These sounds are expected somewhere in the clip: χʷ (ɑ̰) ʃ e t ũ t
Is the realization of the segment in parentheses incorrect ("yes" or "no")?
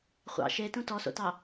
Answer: no